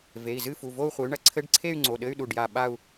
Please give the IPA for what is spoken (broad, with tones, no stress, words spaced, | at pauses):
ve˩˧˩i̯zɨ˥˧fu˩˧˩ vo˥˧u̯χʷe˨˥y̯ɳɐ˨˥ ǀʰɘ˧˥˧ɖǀʰe˥˧y̯ ŋ͡ǀo˩˧˩ɗɘ˧˥˧y̯ɗu˧˩ɖja˧˩ ɓa˥˧u̯